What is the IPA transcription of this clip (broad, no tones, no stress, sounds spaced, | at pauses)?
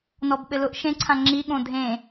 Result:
n ɔ b ɓ ɘ l ʊ ʔ ʃ ẽ ǀʰ ã ŋ͡ǁ i ɠ õ dʱ ẽ